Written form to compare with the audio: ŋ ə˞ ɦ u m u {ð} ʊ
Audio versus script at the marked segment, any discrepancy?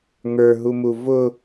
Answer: yes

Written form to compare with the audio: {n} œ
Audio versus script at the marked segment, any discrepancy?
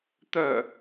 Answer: yes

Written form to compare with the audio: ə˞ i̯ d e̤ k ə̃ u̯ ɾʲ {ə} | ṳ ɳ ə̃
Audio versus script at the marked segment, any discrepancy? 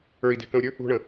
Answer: no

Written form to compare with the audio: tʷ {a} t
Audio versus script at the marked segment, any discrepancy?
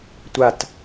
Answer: no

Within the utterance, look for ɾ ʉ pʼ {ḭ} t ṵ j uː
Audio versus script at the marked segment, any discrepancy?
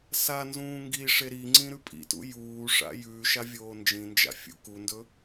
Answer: no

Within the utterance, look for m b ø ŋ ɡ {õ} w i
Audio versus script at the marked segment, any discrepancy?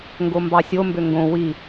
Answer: no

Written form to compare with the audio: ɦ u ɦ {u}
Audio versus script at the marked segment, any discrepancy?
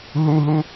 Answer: no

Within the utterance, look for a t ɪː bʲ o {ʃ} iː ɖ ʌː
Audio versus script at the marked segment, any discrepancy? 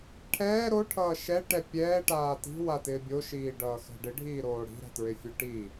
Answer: no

